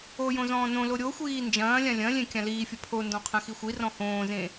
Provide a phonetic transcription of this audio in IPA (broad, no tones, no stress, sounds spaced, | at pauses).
o j õ z ɔ̃ː n õ l o ɾʲ o xʷ iː n d͡ʒ ɐ̃ː lʲ ã lʲ ɐ̃ lʲ ẽ kʲ ã l iː fʲ ɐ pʰ o n d ɔ̃ qʰ ɐ̃ x i xʷ i r ɔ̃ h õː z ẽ